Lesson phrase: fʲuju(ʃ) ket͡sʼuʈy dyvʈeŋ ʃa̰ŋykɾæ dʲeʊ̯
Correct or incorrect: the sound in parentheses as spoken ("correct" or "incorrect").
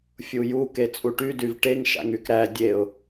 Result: incorrect